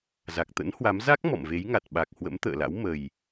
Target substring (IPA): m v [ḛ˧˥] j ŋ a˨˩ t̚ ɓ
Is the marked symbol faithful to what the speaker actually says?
no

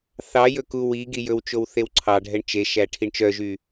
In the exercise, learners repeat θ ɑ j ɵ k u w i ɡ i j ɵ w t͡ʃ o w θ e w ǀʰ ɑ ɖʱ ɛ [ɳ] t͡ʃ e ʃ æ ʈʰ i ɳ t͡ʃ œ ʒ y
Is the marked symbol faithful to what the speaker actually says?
yes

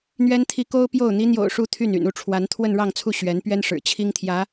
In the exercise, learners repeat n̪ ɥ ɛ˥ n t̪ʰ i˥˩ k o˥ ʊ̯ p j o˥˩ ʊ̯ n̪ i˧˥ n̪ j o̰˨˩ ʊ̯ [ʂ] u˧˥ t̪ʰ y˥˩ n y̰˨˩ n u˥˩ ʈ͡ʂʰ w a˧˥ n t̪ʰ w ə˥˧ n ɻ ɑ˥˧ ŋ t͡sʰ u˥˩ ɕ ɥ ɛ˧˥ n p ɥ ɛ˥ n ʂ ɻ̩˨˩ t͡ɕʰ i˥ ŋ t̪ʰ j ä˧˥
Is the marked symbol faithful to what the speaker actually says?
yes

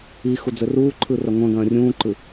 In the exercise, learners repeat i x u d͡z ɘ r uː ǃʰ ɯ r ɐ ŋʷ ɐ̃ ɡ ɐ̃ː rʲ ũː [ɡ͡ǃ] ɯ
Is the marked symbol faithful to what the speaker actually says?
no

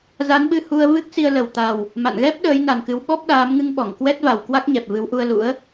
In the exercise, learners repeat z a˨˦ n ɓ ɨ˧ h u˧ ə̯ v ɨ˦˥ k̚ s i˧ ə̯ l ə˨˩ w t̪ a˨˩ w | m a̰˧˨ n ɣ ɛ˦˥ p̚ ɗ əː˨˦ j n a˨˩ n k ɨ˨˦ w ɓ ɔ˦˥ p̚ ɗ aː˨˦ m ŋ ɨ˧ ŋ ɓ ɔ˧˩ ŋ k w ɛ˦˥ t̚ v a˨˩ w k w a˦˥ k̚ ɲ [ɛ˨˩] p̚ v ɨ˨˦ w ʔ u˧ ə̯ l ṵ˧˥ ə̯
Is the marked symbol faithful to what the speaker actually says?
yes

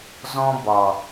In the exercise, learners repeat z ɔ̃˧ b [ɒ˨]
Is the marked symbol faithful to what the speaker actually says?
yes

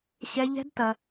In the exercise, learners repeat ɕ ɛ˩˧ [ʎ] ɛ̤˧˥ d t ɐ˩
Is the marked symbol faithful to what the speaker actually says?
yes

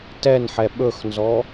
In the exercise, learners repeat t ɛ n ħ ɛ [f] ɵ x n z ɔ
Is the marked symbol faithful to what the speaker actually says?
no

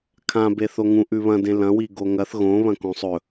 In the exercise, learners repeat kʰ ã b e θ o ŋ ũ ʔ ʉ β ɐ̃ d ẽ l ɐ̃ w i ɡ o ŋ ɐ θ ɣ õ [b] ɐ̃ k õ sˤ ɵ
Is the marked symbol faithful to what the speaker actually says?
no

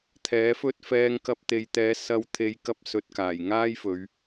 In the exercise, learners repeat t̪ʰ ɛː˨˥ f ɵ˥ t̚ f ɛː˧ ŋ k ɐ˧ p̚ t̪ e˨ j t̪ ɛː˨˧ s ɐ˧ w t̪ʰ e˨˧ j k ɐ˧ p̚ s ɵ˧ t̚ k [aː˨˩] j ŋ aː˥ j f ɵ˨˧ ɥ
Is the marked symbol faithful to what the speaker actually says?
yes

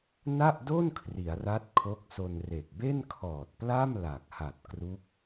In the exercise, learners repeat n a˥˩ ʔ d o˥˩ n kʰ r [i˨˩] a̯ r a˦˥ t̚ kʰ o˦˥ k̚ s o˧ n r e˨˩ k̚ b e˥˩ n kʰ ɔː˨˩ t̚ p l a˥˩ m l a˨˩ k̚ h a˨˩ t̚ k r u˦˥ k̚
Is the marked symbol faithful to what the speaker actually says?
no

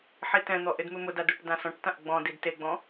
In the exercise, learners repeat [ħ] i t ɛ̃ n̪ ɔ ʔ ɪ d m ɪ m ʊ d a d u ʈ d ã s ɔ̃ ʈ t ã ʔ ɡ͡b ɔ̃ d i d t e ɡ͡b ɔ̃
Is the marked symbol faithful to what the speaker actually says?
yes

